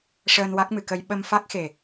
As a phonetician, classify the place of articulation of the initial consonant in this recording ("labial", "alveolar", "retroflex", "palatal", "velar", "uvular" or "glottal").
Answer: retroflex